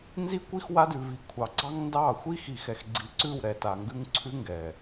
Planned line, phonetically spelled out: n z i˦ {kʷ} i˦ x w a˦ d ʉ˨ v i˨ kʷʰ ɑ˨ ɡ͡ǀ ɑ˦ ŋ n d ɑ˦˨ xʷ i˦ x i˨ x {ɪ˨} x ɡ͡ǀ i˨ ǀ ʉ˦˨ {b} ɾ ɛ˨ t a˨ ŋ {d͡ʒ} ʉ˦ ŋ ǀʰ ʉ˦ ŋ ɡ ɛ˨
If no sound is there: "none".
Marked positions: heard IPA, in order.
kʷ, ɛ˨, w, ɡ

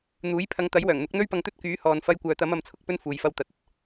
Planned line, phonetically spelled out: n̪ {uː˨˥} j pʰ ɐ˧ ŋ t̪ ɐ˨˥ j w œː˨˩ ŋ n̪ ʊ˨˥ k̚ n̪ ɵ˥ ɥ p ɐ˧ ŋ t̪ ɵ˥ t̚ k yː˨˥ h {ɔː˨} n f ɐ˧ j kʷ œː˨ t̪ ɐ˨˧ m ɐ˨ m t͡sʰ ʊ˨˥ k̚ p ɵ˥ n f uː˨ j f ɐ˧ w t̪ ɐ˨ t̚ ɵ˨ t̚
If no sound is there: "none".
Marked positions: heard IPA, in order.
uː˨˥, ɔː˨

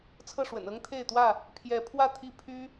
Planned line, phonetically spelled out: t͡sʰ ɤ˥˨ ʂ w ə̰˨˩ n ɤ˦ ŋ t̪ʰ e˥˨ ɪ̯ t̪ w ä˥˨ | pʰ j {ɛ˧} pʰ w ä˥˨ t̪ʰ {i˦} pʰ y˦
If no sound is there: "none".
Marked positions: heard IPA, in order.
ɛ˨˦, i˦

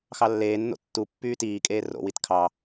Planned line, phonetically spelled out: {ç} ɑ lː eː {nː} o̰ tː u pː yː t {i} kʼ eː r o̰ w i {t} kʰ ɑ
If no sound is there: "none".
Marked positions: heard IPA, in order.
x, nː, iː, t

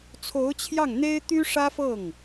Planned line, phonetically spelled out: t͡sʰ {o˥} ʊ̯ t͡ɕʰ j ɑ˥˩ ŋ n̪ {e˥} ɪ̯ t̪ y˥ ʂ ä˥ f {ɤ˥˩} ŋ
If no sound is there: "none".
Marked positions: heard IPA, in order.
o˧˥, e˥, ɤ˥˩

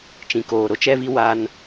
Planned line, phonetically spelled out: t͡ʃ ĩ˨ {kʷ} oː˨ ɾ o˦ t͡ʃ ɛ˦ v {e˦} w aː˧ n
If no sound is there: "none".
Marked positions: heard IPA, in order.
k, i˦

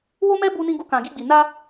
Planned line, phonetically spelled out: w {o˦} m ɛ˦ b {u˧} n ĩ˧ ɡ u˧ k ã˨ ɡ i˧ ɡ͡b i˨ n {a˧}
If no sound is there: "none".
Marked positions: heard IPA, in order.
o˦, u˧, a˧

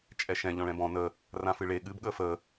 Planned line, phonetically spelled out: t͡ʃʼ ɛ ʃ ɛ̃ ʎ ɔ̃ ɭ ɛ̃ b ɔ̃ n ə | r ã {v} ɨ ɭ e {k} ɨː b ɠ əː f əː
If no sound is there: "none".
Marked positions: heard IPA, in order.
f, ɠ

